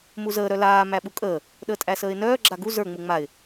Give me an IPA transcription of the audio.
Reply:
m u z əː ɾ œ l aː m æ ɓ u kʼ əː | ɗ əː tʼ æ s əː ɪ̯ n œː ɡ͡ǁ a ɡ u z ə˞ ŋ͡m u ŋ͡m a ɪ̯

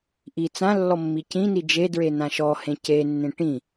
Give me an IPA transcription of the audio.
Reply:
ʔ i t͡s ã lː ɔ mː i c ĩ n i d͡ʒ e d ɹ e n ã ʃ ɔ h ẽ c e nː ẽ ʈ ĩ

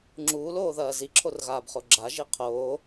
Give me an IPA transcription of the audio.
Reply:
ŋ͡ǁ uː l oː ð ɐː z i ǁʰ o r ɣ aː b χ o ɡ͡ǁ a ʒ i qʰ oː

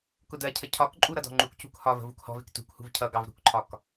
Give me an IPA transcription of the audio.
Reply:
k ʊ d ɜ cʰ ə cʰ ɒ k ǃʼ u ɾ ʌ d ɔ̤ ŋ͡ǃ u k c ṳ k h ɒ v ə̤ v u k h ɔ̤ v ɪ k t ṳ k h ṳ v cʰ ʌ ɡ ɑ v ɾ ṳ k ǃʰ ɒ k

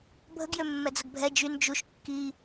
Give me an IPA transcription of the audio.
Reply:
bʱ ə ɡ j ø mː ɛ d͡z ə ɡ bʱ ɛ d͡ʒ y n d͡ʒ u ʃ kː i

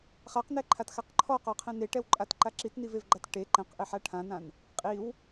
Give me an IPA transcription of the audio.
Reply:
χ a q n ɛ ǃʰ a t x a q ǃʰ ɔ q ɔ qʰ ɛ̃ n e ʈ ɛ w ǃʼ a t ǃ a ǁ i t n i v e v ɡ͡ǃ a t ʈ e ǃ ɛ̃ q ʔ ɪ ħ a ʈʰ ã n ã n | qʼ i w

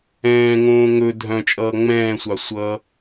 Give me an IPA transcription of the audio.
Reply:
ɛ̃ː ŋ õː ŋ ɵ dʱ œ̃ t͡ʃʼ ʌː ŋ͡m ɛ̃ː sʷ ɑ sʷ ʌ

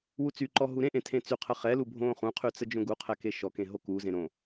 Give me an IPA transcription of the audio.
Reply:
w u t͡s y ǃ ɔ ɦ u ɾ ẽ ʔ ẽ tʰ ẽ t͡s y qʰ ə χ ɛ l u bʱ õ χ ũ qʰ y t͡s ə d͡ʒ õ ɡ u qʰ ɛ k e ʃ ɔ k ẽ ɦ o k u z ẽ ɾ õ

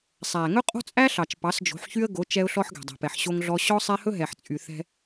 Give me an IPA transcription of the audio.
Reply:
sˤ æ˨ ŋ ɵ˦ qʼ o̤˦ t͡sʼ æ˦ ɬ ɑ˨ t͡ʃ p ɑ˨˦ s d͡ʒ o̤˨˦ ħ ç y˦ ə̯ ɡ o˨˦ t͡ʃ ɛ˦ ʊ̯ ɬ ɔ˦ ħ ɡ ɛ̤˨ dˤ ɛ̤˨ p ɛ˨ ħ ɕ o˦ ŋ ɮ ɔ˦ ɕ ɔ˦ sˤ ɛ˦ h ɵ˦ ɦ ɛ˨ ħ t͡sʼ y˨ θ ɛ̤˦

